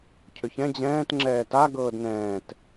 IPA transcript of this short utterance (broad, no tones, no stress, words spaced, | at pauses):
cʰʏçɛ̃ d͡ʑɛ̃ːt ŋ͡ǁɛːta ɡɤːdnɛ̃ːt